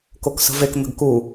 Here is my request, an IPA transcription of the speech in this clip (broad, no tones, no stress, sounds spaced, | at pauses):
k o k s ə̤ v e k n̪ ə̤ ɡ k u